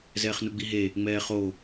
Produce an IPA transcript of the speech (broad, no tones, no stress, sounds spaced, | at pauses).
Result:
z ɛː χ n u ɡ͡b i ɦ e | ŋ͡m ɛː χ o